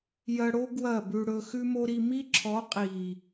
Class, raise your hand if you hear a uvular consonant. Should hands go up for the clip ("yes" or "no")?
yes